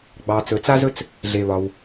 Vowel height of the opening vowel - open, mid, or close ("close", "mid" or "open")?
open